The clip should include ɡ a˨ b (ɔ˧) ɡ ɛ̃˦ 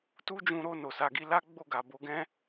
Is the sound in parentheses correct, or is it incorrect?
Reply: incorrect